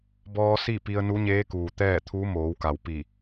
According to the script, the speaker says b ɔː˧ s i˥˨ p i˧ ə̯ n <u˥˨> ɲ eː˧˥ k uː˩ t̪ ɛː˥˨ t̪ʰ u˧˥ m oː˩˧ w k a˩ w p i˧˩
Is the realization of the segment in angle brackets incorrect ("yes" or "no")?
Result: yes